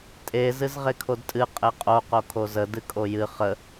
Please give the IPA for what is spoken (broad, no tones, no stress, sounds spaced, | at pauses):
tʼ e z ɨ z ʁ e kʰ o d tʼ ɨ qʼ e qʼ o q o kʰ o z ə d ɨ kʼ o j ɨ χ ə